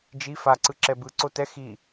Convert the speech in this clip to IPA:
d͡ʒ i f a ǀ ɯ ǁ ɛ b ɯ ǀ o t ɛ x i

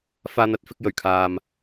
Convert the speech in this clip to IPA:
f aː˧ n̪ ɐ˧ t̚ f ɪ˧ k̚ j ɵ˨˩ ɥ kʰ aː˨ m

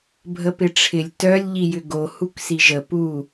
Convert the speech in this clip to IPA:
bʱ ə p ɪ ʈ͡ʂʰ ɪ lʲ t œ lʲ ʎ i j ʏ ɡ o h u k s i ʒ ə p u

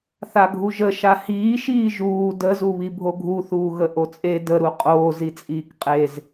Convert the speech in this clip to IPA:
θ a ɡʱ u ʒ ə ʃ a h iː ʃ iː ʒ uː d ə z u β i bʱ o ɡʱ u θ uː ɣ ə ʔ o t͡sʼ e d ə ɾ u qʼ oː z i t͡sʼ iː k qʼ e z

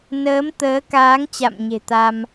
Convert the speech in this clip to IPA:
n əː˨˦ m t̪ əː˨˦ k aː˨˦ ŋ t͡ɕ a̰˧˨ m ɲ e̤˨˩ t̪ a˧ m

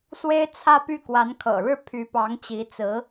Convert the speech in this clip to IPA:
s w e˥ ɪ̯ t͡sʰ ä˥˧ p y˥˩ k w a˧˥ n kʰ ɤ̰˨˩ ɻ ɻ̩˥˩ pʰ y˧˥ p ɑ˧˥ ŋ t͡ɕ i˧˥ t͡s ɹ̩˧˥

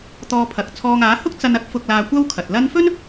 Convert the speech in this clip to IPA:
t̪ ɔː˧ pʰ ɐ˨ k̚ t͡sʰ ɔː˧ ŋ aː˨˥ h ʊ˥ k̚ t͡s ɐ˧ n ɐ˥ k̚ f ʊ˧ k̚ l aː˧ kʷ ɐ˥ w kʰ ɐ˨ t̚ l ɐ˥ n f ɵ˥ n

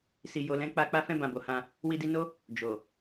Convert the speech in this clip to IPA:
s i˨ j o˨ l ɛ̃˨˦ k͡p a˧ k͡p a˧ f ɛ̃˧ b ã˨ b o˨ h ã˧ | w i˧ d i˧ n o˦ | d͡ʒ o˨

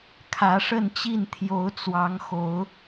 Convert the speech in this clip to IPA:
kʰ ä˨˦ ʂ ə˥˨ n t͡ɕ i˥˨ n t̪ʰ j o˨˦ ʊ̯ t͡s w ɑ˨˦ ŋ x o˨˦ ʊ̯

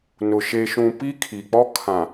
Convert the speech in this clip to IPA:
n ʊ˨ ʃ e˨ ʃ ũ˨ p i˦ kʰ i˨ k͡p ɔ˦ kʰ ã˨

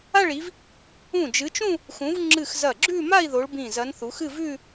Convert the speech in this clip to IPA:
a˥˧ ɭ i˨˦ v | ũ˧˩ d͡ʒ ɨ˨˦ t͡ʃ ũ˥˧ | x ũ˨˦ v ŋ͡ǁ ɨ˧˩ x z ɐ˧˩ ɡ͡ǁ ʉ˥˧ m a˥˧ i̯ ð o˨˦ ɭ b ĩ˧˩ z ɐ˨˦ n θ u˨˦ x ɨ˥˧ v ʉ˥˧

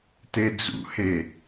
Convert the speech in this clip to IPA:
t e d͡z ṵ h e

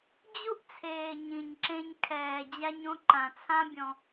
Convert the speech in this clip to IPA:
d͡ʑ u˦ ʔ t͡sʰ eː˨ ɲ ĩ˨ ɲ ǁ ẽ˧ ɲ kʰ ɛː˨ d͡ʑ a˧ ɲ õ˧ ǃ ã˨ t͡sʰ ã˦ bʲ ɔ̃˧

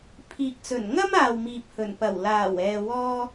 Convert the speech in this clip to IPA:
pʰ iː˨ k̚ t͡s ɵ˨˩ n ŋ ɐ˥ m aː˨ w m iː˨ p̚ h ɵ˨˩ n p ɐ˨˩ w l aː˨˩ w ɛː˨ w ɔː˧

